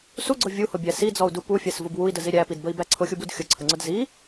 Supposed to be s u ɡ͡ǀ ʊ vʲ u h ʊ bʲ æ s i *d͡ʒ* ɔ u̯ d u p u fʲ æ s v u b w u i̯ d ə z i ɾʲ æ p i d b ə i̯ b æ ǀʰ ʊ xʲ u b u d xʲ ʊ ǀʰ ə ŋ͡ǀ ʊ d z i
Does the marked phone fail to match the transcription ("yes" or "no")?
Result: yes